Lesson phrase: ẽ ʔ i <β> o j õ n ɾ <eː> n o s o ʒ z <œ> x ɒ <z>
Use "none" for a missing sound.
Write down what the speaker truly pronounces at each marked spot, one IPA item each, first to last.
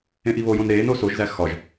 β, eː, æ, ʒ

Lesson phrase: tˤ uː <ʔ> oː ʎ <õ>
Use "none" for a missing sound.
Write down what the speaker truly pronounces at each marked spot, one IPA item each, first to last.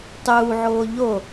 ʕ, o

